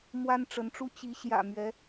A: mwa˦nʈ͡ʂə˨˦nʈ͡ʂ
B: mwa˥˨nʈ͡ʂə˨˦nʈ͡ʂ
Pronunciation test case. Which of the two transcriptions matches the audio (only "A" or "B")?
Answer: A